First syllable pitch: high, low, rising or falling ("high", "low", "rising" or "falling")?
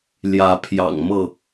rising